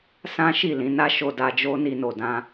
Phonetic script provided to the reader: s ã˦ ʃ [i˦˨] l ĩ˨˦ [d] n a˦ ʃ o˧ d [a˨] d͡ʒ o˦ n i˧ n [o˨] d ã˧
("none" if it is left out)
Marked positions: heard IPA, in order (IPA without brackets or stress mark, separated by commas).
i˦˨, none, a˧, o˨